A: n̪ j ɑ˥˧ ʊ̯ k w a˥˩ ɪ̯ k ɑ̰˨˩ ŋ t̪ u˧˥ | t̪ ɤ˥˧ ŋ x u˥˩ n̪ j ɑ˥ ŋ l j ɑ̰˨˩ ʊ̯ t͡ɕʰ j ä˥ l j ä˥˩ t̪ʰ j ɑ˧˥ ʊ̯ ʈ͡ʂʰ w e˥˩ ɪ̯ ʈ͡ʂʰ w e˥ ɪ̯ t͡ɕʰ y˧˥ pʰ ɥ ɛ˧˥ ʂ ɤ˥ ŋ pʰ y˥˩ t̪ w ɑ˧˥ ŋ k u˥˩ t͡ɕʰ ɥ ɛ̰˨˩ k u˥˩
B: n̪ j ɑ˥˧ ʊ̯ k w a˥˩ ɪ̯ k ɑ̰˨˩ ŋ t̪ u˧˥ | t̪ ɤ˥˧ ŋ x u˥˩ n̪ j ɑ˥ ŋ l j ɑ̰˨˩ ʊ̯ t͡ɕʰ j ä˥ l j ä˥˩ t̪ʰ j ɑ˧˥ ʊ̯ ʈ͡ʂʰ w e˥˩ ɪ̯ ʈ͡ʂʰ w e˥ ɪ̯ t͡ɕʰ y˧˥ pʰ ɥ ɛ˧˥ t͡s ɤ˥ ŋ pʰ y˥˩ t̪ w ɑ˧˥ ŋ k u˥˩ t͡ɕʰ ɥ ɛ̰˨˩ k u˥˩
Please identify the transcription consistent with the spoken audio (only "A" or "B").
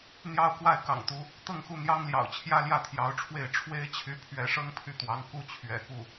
A